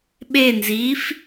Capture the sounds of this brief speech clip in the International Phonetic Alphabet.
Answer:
ɓ e n z iː f

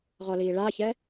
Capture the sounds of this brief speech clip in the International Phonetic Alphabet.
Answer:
ʁ ɔ l iː ɭ a ç ɛ

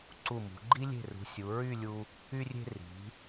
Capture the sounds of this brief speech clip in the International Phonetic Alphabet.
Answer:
ǀ u˧˩ m ṳ˩˧ ɡ͡ǃ i˥ lʲ e̤˧˩ r ṳ˩˧ sʲ u˩˧ ɹ y˥˧ lʲ u˧ | y˧ rʲ e̤˧ r i̤˩˧

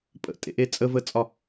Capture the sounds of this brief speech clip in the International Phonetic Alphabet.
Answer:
pʼ ə̰ tʼ ḛ ʔ e t͡sʼ ə v ə t͡sʼ ɒ

